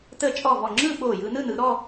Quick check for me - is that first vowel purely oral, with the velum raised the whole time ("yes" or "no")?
yes